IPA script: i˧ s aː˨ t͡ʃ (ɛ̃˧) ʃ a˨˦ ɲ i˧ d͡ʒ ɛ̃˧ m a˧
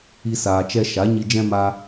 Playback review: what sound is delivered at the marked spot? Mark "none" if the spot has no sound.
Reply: ɛ˧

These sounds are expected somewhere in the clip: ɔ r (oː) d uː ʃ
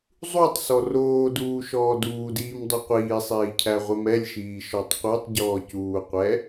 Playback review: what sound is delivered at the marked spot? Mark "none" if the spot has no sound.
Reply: oː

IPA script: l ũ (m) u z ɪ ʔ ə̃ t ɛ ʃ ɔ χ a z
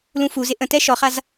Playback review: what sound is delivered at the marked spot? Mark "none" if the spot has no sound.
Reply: f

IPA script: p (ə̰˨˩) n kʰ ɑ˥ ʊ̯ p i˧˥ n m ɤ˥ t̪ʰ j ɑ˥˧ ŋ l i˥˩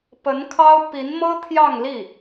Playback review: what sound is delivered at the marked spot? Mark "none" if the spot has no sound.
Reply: ə˧˥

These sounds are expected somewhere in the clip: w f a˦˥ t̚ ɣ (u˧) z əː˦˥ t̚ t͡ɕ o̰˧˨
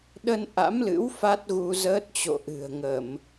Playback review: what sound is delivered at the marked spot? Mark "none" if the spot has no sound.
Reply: u˧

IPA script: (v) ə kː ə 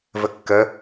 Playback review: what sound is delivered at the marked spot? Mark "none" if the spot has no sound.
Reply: v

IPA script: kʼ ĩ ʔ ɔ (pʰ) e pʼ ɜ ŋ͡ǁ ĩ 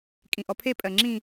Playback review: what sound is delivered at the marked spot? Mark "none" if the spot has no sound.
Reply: pʰ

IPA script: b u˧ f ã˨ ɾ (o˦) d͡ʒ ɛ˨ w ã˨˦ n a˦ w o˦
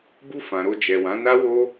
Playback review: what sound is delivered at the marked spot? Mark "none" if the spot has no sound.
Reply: o˧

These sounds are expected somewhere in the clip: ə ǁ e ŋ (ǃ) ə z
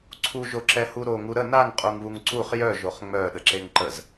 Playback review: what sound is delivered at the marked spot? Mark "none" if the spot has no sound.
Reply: ǃ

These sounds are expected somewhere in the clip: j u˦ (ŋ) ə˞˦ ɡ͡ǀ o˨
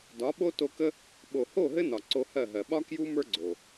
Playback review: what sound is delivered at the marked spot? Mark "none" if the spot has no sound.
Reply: m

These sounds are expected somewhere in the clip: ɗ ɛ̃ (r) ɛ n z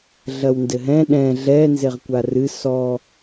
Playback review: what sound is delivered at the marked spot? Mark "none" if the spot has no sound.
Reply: ɮ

